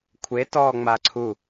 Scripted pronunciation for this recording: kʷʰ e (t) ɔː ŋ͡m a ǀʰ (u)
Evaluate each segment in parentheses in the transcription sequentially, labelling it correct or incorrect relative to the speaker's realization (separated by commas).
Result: correct, correct